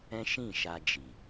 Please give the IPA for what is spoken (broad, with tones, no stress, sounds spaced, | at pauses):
ɛ̃˦ ʃ ĩ˦˨ ʃ a˧ d͡ʒ i˨